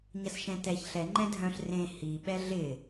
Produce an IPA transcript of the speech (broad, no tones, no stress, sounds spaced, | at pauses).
ɲ ɐ s ʃ ɛ̃ t ɛ ç ɬ ɛ ŋ͡ǃ ɛ̃ dʱ œ̃ ɬ r ẽ h i ɓ ɛ ɮ ɪ